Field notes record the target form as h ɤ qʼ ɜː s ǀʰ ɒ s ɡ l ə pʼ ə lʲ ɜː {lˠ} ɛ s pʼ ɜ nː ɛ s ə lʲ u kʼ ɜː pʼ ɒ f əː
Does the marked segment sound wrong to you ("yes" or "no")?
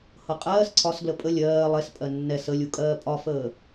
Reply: no